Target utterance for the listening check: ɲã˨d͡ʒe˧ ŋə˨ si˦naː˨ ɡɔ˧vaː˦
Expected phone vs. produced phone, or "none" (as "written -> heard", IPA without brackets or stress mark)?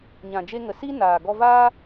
none